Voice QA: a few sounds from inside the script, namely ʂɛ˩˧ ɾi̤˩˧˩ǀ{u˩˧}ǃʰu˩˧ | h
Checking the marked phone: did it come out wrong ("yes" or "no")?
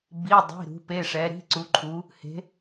no